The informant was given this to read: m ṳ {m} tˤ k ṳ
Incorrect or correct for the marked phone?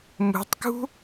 incorrect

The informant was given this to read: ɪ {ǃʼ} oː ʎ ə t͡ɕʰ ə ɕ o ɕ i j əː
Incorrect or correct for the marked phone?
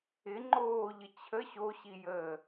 incorrect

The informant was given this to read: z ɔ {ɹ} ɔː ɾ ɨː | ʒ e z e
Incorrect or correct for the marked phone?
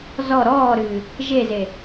incorrect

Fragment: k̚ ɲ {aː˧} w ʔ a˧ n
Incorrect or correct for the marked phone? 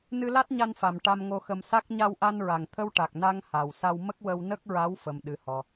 incorrect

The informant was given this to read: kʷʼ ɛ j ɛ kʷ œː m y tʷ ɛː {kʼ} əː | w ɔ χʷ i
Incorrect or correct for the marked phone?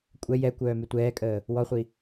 correct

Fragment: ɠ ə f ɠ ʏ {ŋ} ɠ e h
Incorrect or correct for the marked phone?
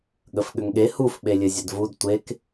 correct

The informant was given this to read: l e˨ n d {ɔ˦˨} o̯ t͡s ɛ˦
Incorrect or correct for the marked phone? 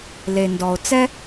incorrect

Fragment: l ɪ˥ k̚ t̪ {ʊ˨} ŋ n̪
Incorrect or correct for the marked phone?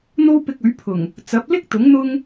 incorrect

